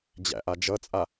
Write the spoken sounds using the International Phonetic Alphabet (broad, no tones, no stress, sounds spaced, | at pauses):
d͡ʑ æ̰ ʔ a d͡ʒ ʌ t͡sʼ a